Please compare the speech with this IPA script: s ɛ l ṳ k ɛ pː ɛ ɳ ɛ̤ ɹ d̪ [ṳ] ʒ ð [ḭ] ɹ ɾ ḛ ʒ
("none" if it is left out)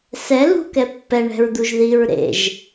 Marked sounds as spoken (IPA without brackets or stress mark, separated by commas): u, i